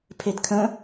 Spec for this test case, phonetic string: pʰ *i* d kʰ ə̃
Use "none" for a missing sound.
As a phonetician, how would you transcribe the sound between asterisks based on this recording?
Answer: e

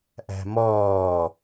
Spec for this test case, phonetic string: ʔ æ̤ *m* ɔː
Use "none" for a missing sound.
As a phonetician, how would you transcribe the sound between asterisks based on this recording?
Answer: m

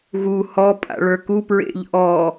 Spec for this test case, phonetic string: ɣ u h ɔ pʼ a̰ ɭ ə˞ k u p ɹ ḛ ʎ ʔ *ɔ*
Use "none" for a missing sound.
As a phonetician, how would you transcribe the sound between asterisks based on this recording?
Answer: ɔ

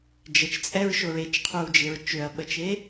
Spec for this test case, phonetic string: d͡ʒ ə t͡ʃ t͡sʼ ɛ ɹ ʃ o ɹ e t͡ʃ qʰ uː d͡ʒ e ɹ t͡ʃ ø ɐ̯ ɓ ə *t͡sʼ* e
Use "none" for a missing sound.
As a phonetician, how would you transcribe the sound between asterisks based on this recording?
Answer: t͡ʃ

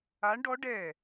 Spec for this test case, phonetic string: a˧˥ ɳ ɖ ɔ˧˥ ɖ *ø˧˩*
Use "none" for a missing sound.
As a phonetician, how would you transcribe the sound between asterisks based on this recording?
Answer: ɛ˧˩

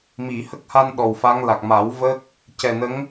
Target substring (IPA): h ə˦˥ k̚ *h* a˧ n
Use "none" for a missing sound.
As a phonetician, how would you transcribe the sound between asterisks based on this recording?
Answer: h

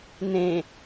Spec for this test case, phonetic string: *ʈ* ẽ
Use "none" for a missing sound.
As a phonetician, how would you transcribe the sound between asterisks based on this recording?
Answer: n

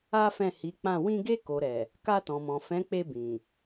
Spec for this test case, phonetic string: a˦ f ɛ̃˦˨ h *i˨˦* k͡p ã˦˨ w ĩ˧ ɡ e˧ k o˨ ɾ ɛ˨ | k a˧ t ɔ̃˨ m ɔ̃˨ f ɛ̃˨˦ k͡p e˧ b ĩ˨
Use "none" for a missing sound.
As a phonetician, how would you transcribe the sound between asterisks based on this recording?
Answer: i˨˦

